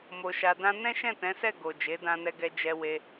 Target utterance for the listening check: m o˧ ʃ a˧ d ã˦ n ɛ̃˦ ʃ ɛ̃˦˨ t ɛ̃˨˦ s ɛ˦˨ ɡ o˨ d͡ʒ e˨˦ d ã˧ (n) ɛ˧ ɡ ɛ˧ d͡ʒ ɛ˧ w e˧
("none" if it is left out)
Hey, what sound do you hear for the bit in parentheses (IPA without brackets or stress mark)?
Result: n